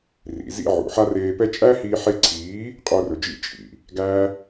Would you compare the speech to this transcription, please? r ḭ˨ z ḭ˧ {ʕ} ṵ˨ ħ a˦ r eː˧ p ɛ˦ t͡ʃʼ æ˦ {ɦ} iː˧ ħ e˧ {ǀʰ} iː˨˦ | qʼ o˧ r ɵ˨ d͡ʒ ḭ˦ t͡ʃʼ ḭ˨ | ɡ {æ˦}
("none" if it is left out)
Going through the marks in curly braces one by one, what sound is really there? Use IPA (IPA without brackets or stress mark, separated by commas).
ʕ, h, ǀʰ, æ˦